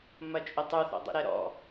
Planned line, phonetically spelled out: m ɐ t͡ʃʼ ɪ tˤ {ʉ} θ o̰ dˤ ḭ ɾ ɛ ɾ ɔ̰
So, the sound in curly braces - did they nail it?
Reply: no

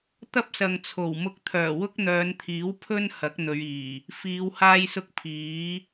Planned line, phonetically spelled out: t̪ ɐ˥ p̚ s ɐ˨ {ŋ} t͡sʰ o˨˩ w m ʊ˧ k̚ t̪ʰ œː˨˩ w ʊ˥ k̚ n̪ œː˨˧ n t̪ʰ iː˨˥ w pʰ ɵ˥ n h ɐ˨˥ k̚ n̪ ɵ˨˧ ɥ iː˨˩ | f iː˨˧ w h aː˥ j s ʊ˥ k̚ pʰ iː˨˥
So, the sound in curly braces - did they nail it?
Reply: yes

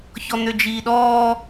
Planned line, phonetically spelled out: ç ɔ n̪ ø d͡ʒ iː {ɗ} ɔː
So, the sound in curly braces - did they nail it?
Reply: yes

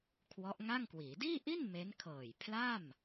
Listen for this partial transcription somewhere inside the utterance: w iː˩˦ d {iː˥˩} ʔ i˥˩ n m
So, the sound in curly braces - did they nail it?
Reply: yes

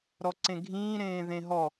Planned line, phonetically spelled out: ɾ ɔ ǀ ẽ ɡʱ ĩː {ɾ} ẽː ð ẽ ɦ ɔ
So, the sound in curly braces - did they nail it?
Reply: yes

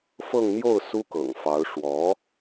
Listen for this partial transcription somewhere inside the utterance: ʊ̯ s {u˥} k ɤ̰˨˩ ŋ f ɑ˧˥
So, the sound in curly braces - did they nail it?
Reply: yes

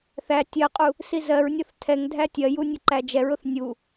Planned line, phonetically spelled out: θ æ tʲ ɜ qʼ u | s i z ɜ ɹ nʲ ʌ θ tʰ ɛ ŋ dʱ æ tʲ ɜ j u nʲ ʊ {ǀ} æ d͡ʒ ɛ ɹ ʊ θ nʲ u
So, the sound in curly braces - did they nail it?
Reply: no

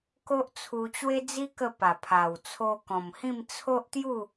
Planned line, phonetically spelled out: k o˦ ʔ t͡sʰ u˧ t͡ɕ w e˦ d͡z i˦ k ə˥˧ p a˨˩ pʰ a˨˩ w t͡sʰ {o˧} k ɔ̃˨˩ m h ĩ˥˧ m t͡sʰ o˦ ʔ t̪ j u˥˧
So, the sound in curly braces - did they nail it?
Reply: yes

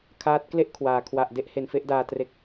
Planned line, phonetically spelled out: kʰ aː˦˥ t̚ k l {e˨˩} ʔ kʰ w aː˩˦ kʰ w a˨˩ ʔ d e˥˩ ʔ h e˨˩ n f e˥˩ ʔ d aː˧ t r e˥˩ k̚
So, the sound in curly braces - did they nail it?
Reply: no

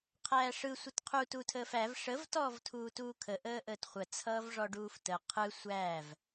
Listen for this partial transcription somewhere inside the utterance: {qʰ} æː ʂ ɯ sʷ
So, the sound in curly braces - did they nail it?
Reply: yes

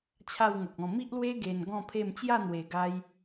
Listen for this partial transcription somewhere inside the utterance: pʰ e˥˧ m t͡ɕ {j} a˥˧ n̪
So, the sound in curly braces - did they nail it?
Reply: yes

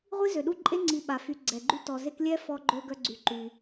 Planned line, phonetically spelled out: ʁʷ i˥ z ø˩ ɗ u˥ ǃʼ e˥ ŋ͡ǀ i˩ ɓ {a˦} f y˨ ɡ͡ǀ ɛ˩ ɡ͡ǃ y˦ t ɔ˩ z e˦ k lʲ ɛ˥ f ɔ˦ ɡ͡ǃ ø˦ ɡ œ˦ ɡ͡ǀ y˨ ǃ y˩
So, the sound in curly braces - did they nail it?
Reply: no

